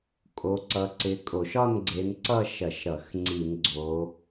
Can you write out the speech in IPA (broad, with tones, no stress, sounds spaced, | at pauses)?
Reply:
kʼ o˨˦ ǀ ʌ˨˦ ǀ ɪ˨˦ kʼ o˧˩˧ ʃ ɒ˥˧ n ɡ͡ǀ e˨˦ n ǀ ʌ˥˧ ʃ ɐ˧˩˧ ʃ ɾ ʌ˧˩˧ x ŋ͡ǀ i˧˩˧ n ɡ͡ǀ o˨˦